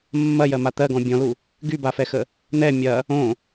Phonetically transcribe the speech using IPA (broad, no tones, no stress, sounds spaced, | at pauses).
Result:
mː ɐ j ɜ m a t̪ ɜ ɡ ɔ̃ bʲ ɔ̃ l u | ɡ y b a f ɛ x ə | n̪ ɛ mʲ ɐ | õ